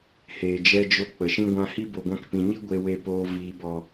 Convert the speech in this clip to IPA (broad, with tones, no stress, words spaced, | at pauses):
heː˨d͡ʒɛ˧d͡ʒo˧ k͡pə˨ʃĩ˦ɡʷã˦ hi˦bo˨ɡʷã˧k pĩ˨ɲi˦ ɡʷe˧ we˨poː˨ viː˨bɔ˨